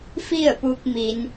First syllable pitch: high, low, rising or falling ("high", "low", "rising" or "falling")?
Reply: falling